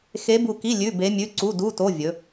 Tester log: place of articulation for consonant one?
velar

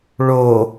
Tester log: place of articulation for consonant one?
retroflex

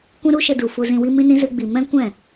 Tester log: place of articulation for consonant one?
velar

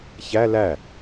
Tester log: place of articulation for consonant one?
palatal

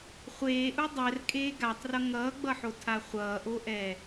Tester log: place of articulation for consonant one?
uvular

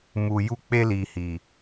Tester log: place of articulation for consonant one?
labial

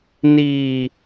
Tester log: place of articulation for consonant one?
alveolar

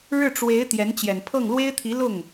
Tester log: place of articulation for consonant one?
retroflex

